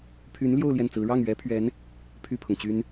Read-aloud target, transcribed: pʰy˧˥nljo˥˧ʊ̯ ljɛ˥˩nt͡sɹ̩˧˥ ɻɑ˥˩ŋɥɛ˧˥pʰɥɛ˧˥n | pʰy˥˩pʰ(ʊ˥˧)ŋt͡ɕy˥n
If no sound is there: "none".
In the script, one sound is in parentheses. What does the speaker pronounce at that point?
ʊ˩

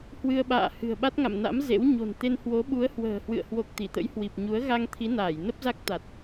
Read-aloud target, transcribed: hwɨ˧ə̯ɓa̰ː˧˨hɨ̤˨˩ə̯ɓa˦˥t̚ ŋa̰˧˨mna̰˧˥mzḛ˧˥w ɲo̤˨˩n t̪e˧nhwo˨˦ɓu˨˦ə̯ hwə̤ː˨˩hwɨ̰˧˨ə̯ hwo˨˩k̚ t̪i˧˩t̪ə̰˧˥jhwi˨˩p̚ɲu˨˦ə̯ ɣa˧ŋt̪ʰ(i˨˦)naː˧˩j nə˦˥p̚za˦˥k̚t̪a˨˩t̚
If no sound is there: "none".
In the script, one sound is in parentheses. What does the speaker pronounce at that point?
i˨˦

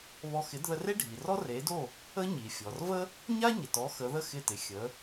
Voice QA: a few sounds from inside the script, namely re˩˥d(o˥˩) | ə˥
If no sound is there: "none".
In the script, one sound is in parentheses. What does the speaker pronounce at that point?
o˥˩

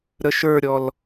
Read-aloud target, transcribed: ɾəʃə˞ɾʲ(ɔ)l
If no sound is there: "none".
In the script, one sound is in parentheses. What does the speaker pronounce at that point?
ɔ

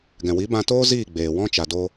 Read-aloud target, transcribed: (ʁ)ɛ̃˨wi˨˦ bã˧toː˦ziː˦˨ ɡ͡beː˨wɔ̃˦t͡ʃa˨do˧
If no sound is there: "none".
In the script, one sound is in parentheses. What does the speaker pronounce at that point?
ɡ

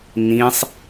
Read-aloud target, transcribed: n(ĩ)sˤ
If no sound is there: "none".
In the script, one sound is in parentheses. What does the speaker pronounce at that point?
ĩ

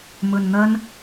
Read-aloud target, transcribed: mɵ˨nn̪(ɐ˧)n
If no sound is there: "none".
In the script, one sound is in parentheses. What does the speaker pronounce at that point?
ɐ˧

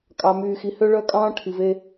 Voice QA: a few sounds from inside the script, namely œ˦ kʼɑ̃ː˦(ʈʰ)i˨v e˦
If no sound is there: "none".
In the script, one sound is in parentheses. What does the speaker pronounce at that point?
ʈʰ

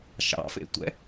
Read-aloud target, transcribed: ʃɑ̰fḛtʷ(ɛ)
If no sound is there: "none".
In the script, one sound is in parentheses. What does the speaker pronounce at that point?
ɛ̰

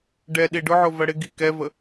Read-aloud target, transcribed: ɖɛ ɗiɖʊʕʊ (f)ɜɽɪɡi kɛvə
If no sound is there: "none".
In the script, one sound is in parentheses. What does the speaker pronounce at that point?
v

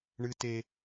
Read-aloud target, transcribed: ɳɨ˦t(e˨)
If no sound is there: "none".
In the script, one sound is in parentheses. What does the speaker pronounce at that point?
e˦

